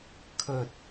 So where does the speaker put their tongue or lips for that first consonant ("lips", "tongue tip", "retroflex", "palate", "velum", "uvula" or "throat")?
velum